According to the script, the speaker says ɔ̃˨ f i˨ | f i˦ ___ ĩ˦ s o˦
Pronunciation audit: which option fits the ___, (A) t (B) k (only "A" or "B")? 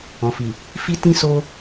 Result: A